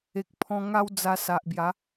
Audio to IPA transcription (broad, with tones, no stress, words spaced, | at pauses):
e˨k̚pʰɔ̃˧ŋa˦wd͡za˧ sa˨ʔbja˨˦